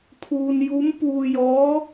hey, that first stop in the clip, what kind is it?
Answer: aspirated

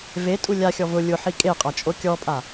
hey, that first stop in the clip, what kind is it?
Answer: ejective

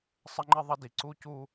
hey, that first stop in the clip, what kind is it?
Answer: click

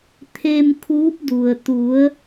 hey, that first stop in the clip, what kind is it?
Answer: aspirated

